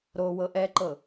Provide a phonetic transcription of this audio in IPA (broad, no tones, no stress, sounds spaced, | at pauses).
ɾ o w ɤ ʔ ɛ ǃ ɤ